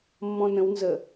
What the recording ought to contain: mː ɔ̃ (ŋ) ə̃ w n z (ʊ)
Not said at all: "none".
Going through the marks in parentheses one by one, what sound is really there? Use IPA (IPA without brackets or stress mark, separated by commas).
n, ə